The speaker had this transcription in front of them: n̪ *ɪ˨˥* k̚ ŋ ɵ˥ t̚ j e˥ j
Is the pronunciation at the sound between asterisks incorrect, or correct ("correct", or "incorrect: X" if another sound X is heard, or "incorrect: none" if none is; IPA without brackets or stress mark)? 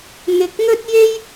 incorrect: ɪ˨